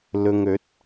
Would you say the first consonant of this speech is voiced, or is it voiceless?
voiced